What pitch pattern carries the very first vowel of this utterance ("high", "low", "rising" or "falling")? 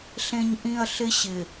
low